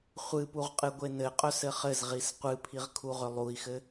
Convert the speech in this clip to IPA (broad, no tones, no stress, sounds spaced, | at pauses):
χʷ ɨ p u ʁ qʼ ɨ ɡʷ e n ɘ qʼ œ s ɘ χ ɘ z ʁ i s qʷ ɨ pʰ i ʁ kʰ u ʁ ʏ lˠ u i̯ x ɘ